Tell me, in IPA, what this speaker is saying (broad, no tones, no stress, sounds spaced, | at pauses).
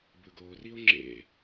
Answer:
b ɯ ɡ o r i o̯ ŋ͡ǁ ḛ